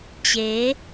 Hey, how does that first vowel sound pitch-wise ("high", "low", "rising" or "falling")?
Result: rising